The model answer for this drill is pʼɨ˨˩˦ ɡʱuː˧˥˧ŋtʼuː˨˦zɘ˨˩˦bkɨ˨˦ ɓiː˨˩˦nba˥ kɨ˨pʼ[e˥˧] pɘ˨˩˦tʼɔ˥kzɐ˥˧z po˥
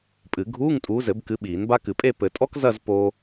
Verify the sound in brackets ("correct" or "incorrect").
correct